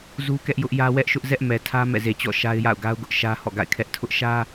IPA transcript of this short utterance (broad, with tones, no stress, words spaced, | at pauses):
zu˦kɛ˦ʔjʊ˦ʔjä˦ wɛ˦ʔʃʊ˦ʔ zɛ˦ʔmɛ˨tʰä˦ mɛ̰˦˨ze˨t͡ɕɔ̰˦˨ ʃa˦ɪ̯ja̰˦˨ʊ̯ɡa˦ʊ̯ɡʊ˦ʔ ʃä˦hɔ̰˦˨ɡa̰˦˨ɪ̯kʰɛ˦ʔ tʰʊ˦ʔʃä˦